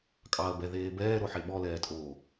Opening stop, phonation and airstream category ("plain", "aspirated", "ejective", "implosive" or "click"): ejective